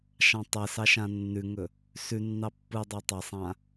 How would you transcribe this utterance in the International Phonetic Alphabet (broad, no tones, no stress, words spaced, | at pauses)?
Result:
ʃɑ̃tˤesɑ ʃãnːʉŋɵ | sʉnːɑ pːɯdˤɑ tˤasˤã